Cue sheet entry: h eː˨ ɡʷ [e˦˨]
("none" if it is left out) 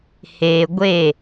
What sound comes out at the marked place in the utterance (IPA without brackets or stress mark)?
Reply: e˦˨